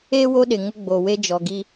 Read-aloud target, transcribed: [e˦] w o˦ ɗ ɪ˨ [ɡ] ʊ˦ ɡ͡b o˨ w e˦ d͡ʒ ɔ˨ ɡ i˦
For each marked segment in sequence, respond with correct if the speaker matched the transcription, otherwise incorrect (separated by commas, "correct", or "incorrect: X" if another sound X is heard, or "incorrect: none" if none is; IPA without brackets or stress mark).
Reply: correct, incorrect: ŋ